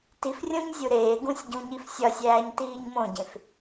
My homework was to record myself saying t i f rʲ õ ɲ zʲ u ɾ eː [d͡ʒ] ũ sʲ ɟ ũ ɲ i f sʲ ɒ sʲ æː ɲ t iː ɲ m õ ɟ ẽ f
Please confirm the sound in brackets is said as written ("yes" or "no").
no